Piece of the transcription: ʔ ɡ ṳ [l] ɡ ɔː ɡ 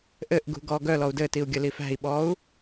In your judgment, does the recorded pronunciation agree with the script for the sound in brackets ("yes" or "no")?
no